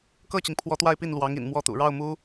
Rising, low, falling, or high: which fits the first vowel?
falling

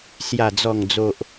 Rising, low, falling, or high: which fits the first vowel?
low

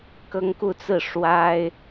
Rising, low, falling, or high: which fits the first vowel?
high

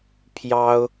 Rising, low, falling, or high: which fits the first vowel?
high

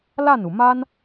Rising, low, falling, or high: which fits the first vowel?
falling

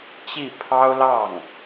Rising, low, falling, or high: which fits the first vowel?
falling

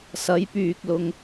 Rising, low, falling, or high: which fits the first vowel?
rising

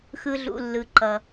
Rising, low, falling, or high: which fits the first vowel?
low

